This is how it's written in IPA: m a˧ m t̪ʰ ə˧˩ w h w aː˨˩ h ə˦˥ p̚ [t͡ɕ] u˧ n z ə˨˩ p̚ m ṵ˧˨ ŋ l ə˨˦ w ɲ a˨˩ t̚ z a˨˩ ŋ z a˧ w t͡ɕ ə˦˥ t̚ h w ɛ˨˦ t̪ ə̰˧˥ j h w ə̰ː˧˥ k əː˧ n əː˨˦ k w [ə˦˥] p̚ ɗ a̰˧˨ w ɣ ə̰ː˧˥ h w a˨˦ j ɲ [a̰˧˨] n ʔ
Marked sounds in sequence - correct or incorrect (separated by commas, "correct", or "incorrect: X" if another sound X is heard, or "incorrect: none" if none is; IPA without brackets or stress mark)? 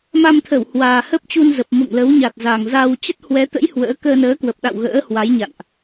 correct, incorrect: ə˨˩, correct